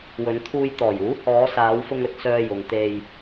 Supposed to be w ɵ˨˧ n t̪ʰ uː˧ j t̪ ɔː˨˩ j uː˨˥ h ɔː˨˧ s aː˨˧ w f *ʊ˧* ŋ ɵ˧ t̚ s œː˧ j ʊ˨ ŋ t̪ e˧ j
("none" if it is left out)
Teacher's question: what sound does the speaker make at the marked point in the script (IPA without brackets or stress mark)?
ʊ˧